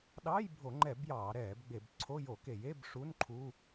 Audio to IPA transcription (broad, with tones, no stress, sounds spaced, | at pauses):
ɗ ɑː˧˥˧ j bʱ o˧˩˧ ŋ͡ǃ ɛ˧˩˧ b j ɑː˧˩˧ ɾ ɛː˧˩˧ b ɡ͡b e˧˩˧ b ǀʰ o˧˥˧ j o˧˩˧ k e˧˩˧ j e˧˥˧ b ʂ u˧˥˧ n ǃʰ uː˧˥˧